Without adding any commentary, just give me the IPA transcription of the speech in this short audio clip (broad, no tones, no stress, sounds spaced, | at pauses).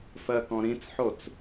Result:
f ɜ k ɔ̃ ɾ ĩ t͡s ħ o t͡s